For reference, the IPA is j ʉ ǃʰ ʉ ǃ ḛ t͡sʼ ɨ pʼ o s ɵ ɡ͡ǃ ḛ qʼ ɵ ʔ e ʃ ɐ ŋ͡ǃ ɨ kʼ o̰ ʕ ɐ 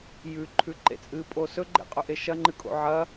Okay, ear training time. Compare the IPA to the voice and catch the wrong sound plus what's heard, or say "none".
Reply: none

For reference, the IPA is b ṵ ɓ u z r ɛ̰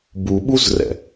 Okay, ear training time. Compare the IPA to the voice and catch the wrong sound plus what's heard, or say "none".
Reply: ṵ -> u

